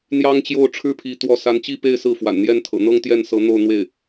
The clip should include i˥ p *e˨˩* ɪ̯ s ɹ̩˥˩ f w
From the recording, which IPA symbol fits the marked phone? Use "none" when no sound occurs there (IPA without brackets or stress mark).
e˥˧